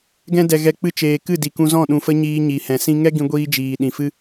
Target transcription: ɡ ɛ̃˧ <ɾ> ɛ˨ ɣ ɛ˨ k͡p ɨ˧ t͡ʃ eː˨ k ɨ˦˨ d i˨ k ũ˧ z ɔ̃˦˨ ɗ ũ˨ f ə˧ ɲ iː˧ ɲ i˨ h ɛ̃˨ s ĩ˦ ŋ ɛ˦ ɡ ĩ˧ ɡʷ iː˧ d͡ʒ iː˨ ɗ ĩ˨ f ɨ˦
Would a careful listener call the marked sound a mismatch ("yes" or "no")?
yes